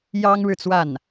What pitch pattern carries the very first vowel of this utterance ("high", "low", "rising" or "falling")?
high